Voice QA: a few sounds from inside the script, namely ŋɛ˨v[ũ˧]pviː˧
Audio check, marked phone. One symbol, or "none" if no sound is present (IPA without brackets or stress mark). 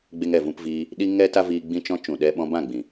ũ˧